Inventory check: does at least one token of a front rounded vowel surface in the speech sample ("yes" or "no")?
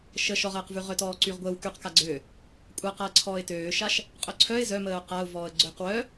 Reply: yes